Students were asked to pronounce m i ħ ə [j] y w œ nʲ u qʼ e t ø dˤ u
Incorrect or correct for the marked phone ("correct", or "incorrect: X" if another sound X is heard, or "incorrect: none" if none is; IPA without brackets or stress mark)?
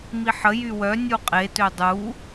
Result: correct